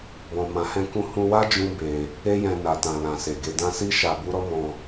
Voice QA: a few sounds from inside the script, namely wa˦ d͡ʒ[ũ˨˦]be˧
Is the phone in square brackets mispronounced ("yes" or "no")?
yes